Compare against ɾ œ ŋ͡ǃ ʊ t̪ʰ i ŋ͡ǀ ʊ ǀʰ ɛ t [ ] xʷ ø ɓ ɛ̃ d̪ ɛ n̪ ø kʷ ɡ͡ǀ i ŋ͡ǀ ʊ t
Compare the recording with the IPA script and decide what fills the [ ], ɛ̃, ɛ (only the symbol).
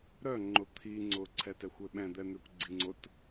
ɛ